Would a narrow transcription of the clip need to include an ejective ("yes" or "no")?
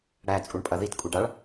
yes